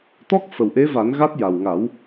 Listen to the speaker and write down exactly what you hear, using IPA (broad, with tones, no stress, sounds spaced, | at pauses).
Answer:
t̪ ɔ˦˥ k̚ f ə˨˩ w ʔ e˧˥ v a˨˩˦ n ɣ a˦˥ t̚ j a˨˩ w ŋ a˨˩˦ w